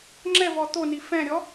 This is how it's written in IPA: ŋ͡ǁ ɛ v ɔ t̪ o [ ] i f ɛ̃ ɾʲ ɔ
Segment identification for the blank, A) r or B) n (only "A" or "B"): B